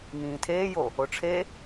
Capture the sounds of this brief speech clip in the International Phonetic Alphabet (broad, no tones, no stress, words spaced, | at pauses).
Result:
ŋĩːtʰeːjo | oʈ͡ʂʰe